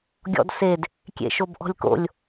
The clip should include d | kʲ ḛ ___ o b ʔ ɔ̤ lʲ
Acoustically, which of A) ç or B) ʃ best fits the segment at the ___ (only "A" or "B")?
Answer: B